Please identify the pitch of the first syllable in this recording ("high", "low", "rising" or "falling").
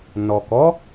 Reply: low